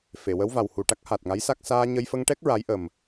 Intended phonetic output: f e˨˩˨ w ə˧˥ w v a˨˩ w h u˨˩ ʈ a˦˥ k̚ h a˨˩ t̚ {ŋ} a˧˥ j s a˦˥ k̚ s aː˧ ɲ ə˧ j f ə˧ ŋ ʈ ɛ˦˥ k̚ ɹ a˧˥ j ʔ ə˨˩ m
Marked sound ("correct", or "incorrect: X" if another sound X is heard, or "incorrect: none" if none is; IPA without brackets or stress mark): correct